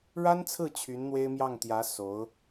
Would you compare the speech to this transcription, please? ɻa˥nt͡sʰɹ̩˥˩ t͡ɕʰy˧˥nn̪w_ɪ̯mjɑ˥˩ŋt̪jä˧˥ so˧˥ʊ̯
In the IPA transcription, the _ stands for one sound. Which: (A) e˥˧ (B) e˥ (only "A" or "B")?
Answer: B